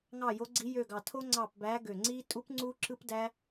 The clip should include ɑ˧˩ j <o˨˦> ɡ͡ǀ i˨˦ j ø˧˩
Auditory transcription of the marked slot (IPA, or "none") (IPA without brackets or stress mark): o˨˦